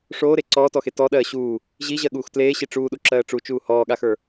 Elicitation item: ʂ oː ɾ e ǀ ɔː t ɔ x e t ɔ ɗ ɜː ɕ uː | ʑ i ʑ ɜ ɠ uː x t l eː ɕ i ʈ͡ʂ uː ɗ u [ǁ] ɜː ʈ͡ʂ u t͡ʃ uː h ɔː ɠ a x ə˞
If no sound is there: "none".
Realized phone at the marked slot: ǁ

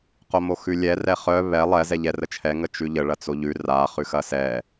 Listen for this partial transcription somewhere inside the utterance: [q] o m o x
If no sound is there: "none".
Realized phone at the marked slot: q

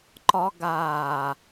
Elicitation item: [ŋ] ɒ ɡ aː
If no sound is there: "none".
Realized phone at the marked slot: ǃ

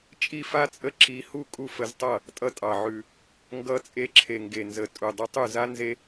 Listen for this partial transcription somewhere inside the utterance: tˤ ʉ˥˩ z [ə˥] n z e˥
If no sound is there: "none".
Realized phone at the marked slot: a˥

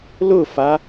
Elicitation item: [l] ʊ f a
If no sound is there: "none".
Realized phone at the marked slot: l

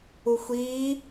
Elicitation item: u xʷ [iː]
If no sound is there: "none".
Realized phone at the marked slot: iː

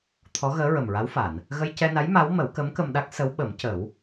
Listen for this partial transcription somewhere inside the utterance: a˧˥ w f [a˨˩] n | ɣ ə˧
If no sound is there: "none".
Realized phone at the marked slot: a˨˩˨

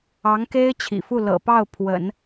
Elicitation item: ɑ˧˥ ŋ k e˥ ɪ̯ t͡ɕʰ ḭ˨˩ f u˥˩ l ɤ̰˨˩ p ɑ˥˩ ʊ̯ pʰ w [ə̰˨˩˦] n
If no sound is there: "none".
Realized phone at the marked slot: ə̰˨˩˦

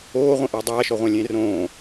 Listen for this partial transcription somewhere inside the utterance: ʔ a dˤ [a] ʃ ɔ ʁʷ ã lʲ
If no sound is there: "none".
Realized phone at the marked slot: aː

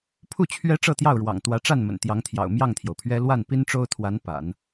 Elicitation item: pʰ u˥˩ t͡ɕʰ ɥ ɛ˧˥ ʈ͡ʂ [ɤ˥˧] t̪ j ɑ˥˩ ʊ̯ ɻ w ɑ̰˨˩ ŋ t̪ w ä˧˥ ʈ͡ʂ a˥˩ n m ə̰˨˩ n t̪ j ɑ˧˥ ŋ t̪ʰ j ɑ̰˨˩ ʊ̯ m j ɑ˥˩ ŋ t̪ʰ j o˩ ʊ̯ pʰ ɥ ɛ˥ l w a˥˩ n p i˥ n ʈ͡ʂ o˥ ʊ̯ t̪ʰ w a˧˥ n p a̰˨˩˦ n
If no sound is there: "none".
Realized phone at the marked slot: ɤ˥˧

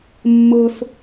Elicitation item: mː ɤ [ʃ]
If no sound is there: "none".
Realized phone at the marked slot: s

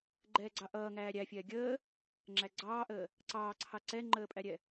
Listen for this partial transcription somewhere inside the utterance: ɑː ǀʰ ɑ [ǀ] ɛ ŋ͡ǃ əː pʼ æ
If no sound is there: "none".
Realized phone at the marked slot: ǀ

